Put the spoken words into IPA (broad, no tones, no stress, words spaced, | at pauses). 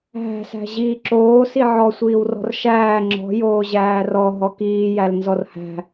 ɦæ̤sæ̤ ʑiːǁoː siʕɔsʷiːwrɔ̤r ʃæː ŋ͡ǁɔ̤ joːʑæːrɔ ɦɔkiːjæl nzɔrhæ̤